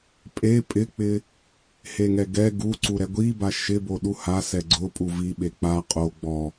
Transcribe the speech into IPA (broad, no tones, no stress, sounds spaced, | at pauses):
pʼ e pʼ ɪ k͡p ɪ | h e ŋ ɛ ɡ ɛ ɡ u ǀ u ɾ ɛ ɡʷ i b a ʃ ɪ b o ɗ u h a s ɛ ɡ͡ǀ ʊ pʼ u v i ɓ e k͡p a qʼ o ɡ͡b ɔ